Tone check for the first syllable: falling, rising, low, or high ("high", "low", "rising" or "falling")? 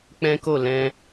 high